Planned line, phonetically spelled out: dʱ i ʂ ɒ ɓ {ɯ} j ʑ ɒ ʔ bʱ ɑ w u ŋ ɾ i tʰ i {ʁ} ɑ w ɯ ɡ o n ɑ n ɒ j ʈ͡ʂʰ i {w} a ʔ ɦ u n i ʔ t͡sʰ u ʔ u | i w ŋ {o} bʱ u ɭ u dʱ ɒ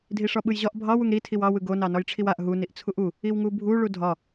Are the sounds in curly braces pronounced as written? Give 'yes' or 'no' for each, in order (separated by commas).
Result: yes, no, yes, no